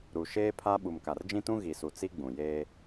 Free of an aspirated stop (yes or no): no